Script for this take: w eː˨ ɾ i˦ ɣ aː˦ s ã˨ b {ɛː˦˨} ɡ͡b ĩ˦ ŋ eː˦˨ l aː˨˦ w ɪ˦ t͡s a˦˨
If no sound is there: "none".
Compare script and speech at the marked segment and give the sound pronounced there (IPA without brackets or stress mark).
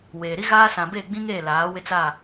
eː˦˨